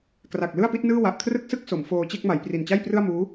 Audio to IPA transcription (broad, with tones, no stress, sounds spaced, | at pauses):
k r a˨˩ k̚ l ɯ˥˩ a̯ p i˦˥ t̚ n ɯː˥˩ w a˨˩ ʔ kʰ r ɯ˥˩ k̚ s ɯ˥˩ k̚ s o˩˦ m f oː˧ t͡ɕ e˥˩ k̚ m a˩˦ j p r i˨˩ n t͡ɕ a˥˩ j p r ɯ˥˩ a̯ m uː˦˥